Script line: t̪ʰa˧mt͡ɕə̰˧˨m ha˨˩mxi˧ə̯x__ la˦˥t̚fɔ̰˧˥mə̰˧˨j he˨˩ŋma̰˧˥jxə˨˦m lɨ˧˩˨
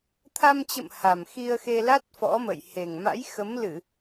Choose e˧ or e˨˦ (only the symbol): e˧